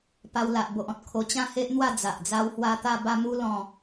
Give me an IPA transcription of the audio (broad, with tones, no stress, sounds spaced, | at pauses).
p a˧ w l a˨ ʔ b o˨ ʔ ɔ̃˦ t̚ kʰ o˧ t͡ɕ ã˥˧ h e˦ ʔ n̪ w a˥˧ d͡z a˨ ʔ d͡z a˦ w h w a˦ t̪ a˥˧ b a˥˧ m u˦ l ɔ̃˥˧